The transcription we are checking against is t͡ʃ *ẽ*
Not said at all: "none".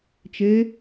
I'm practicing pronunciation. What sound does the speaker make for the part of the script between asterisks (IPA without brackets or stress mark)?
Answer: e